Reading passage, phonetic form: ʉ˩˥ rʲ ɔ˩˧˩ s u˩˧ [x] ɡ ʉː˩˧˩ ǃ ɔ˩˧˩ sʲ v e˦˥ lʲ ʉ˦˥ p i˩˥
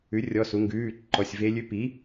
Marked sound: incorrect: ŋ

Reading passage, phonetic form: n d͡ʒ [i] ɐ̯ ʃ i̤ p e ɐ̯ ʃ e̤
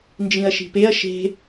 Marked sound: incorrect: ĩ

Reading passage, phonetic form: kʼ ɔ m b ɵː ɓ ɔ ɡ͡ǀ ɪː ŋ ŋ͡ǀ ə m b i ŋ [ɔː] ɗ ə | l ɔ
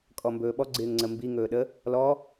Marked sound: incorrect: ɵː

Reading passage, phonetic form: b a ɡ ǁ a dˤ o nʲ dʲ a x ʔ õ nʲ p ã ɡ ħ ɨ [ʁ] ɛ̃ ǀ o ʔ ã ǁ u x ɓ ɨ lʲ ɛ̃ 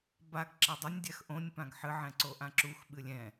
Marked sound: incorrect: ʕ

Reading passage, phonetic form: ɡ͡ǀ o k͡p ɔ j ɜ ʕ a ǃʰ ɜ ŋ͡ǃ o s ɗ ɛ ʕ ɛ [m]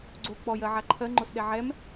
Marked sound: correct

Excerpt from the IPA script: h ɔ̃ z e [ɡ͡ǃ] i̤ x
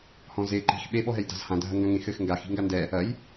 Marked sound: incorrect: ǃ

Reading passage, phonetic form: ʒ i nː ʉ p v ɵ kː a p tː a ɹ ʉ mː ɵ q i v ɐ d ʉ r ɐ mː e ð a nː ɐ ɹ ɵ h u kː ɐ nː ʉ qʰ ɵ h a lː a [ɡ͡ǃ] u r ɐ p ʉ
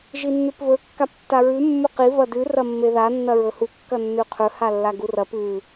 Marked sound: incorrect: ɡ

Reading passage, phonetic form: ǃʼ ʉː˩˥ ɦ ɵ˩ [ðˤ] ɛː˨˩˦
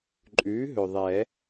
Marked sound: correct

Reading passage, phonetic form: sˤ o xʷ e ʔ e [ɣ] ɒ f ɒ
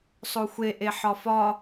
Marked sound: incorrect: ħ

